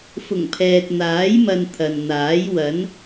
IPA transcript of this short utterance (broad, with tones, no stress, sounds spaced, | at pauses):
f ʊ˨˩ ŋ pʰ ɛː˨ t̚ n̪ aː˨˥ j m ɐ˧ n t̪ʰ ɐ˨ n n̪ aː˨˥ j w ɐ˨˥ n